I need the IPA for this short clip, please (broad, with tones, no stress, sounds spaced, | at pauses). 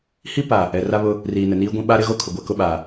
h i˦ p a˨ | ɛ˨ r a˦ β ʊ˦ | r iː˨ n ɛ˨ n iː˦ ɡʷ ĩ˦ ɓ a˦ ɾ ɪ˦ ɣ o˦ kʰ ʊ˨ ɡʷ ɛ˦ k ʊ˦ ɓ a˨